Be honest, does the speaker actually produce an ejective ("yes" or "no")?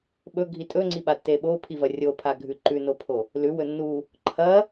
yes